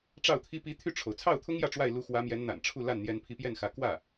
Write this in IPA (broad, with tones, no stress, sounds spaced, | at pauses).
ʈ͡ʂ ɑ˥˩ ʊ̯ t̪ʰ i˥ p i˧˥ t̪ʰ y˥˩ ʈ͡ʂʰ o˩ ʊ̯ t͡sʰ ɑ˥˩ ʊ̯ t̪ʰ ʊ˥ ŋ j ä˥˧ ʈ͡ʂ w a˥˩ ɪ̯ l u˧˥ x w ä˧˥ m j ɛ˧˥ n n̪ a̰˨˩ n ʈ͡ʂʰ u˥˧ l a˥˩ n n̪ j ɛ˧˥ n pʰ i˧˥ p j ɛ˥˩ n x ä˧˥ k w ä˥˩